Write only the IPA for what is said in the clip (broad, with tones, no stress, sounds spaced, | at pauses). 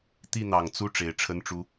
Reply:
t̪ i˥˨ n̪ ɑ˨˩ ŋ t͡s u˥˨ ʈ͡ʂ e˨˦ ɪ̯ ʈ͡ʂʰ ə˦ n ʈ͡ʂ u˦